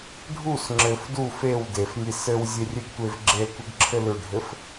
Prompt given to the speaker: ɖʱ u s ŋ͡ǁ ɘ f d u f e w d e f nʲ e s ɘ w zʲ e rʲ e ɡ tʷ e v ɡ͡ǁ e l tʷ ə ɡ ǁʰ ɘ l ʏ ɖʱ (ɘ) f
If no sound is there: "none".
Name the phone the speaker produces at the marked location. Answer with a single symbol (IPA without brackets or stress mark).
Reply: ɘ